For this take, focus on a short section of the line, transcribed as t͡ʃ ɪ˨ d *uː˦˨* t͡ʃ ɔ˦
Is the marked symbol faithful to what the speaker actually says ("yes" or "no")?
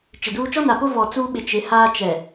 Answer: no